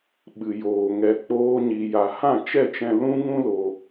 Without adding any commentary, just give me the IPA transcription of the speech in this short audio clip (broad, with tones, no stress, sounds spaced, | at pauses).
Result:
ɓ ɨ˨ j oː˨ ŋ ɛ˧ k͡p oː˦ ɲ i˧ j a˧ h ã˦˨ t͡ʃ ɛ˦˨ t͡ʃ ɛ̃˧ l ũ˦ ŋ ũ˦ l o˧